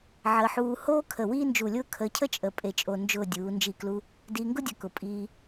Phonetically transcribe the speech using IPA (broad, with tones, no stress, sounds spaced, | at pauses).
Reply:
ʕ əː˧ ħ uː˧ h oː˥ kʰ ə˧˩ w iː˥ n d͡ʒ u˧˩ lʲ ʊː˥ kʰ əː˧ cʰ ə˥ t͡ʃʼ ə˧˩ pʼ e˧ t͡ʃʼ o˧ n d͡ʒ ʊː˥˧ dʲ uː˩˧ n d͡ʒ i˧˩ k l u˧ | d iː˧ ŋ ɡ ʊ˥ dʲ ə˧˩ k ʊ˩˧ pʼ iː˧